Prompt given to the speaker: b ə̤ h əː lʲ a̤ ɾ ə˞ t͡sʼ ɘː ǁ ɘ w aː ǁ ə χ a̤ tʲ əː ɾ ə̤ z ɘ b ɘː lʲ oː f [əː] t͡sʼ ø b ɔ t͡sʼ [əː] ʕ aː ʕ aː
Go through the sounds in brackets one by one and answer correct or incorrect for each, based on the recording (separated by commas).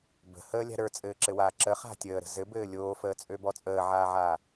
correct, correct